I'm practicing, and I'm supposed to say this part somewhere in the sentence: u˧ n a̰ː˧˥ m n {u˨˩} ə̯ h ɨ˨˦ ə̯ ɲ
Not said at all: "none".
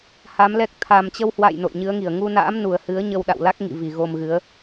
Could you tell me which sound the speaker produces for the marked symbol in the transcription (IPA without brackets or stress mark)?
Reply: u˨˩